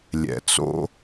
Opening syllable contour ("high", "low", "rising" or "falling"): low